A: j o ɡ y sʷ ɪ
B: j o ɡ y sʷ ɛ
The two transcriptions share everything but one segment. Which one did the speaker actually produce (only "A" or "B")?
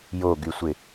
A